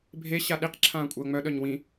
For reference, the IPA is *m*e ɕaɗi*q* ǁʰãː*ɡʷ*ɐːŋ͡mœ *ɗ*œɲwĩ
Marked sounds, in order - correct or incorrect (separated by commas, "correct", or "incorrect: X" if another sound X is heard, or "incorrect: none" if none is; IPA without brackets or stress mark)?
incorrect: bʱ, correct, incorrect: kʷʼ, correct